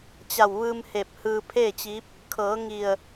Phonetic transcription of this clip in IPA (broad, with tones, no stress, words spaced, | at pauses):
t͡ɕa˧˩wʋɯː˧mhe˧˩p̚hɯː˧ pʰeː˥˨t͡ɕi˧˥p̚ | kʰɤː˩˧ ŋi˧˩ə̯